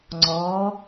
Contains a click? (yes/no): yes